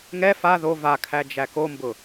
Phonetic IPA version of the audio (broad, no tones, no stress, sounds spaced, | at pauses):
ŋ ɛ f a ð o v a kʰ æ d͡ʒ æ k o m b ʊ